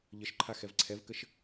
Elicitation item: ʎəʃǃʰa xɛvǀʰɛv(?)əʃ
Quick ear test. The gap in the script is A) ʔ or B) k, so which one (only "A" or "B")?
B